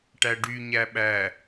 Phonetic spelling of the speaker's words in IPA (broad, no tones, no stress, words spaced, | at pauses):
ʈæɖy ɲæɓæ